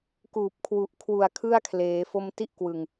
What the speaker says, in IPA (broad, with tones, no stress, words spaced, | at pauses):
kuː˨˩p̚kʰwu˨˩ʔkʰwu˨˩a̯ kʰɯ˥˩a̯kʰleː˩˦ fo˧mti˦˥ʔ kwɯ˨˩ŋ